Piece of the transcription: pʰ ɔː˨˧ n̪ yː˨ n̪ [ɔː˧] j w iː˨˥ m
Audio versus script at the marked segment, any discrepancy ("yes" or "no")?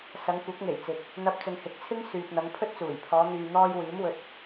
no